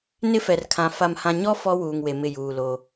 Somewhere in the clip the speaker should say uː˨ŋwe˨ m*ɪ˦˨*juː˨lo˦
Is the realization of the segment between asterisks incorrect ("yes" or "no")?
no